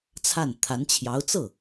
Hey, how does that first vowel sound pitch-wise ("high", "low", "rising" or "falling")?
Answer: falling